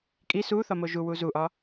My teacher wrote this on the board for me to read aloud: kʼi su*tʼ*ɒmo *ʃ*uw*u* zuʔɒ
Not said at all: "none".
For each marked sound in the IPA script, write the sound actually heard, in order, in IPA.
θ, ʒ, u

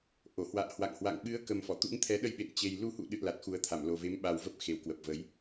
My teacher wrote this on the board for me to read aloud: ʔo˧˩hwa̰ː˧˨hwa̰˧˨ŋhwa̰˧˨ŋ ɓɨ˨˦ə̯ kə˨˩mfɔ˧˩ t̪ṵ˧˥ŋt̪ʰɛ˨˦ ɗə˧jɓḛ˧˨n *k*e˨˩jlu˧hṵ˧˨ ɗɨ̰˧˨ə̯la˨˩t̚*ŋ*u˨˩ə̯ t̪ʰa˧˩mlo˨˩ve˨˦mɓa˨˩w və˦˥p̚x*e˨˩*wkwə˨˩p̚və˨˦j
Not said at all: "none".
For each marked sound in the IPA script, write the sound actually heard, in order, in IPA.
t͡ɕ, x, e˨˩

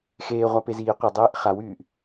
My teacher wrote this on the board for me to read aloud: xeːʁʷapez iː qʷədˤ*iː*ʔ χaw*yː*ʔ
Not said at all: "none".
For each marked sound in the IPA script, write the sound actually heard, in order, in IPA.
eː, yː

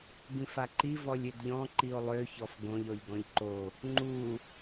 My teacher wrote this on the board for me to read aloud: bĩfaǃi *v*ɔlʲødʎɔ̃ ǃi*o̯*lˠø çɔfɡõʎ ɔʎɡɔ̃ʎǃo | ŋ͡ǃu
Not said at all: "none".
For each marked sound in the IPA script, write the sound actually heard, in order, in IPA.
v, o̯

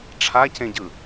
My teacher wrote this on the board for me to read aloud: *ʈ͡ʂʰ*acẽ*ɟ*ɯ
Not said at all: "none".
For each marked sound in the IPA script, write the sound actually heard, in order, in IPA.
ʈ͡ʂʰ, ɟ

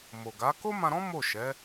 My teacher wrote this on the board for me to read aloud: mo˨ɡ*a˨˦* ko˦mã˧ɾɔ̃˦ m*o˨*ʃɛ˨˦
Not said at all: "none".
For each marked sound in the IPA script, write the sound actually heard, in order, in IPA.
a˨˦, o˦˨

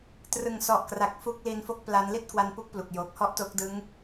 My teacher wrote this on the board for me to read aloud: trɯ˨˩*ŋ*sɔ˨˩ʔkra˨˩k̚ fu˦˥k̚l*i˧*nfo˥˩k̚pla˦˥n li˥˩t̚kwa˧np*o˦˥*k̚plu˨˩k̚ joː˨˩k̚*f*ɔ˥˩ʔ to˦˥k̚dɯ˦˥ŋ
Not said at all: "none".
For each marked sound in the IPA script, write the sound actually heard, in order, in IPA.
ŋ, i˧, u˦˥, h

